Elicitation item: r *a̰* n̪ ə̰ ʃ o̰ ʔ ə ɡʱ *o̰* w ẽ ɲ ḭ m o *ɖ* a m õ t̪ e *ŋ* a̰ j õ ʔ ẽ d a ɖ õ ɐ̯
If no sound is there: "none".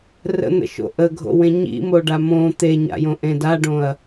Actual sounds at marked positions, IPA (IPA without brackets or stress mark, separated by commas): ə̰, o̰, ɖ, ɲ